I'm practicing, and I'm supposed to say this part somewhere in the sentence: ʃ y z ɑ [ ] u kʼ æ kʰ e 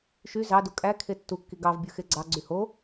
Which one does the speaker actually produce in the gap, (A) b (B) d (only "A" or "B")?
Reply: B